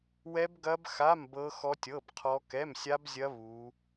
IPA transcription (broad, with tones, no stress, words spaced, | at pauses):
wɛ˦˥bɡɐ˦˥bxa˧˥˧m bɤ˦˥xɔ˦˥tʲɤ˧˥˧bqʰɔ˦˥ kɛ˧˥˧msʲa˦˥bzʲɐ˦˥ βu˦˥